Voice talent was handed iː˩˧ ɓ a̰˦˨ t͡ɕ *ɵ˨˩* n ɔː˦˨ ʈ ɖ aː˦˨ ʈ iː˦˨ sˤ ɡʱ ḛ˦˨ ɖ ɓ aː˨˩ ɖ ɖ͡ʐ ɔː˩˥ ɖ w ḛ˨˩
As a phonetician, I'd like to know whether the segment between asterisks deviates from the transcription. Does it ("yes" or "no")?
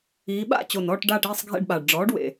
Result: yes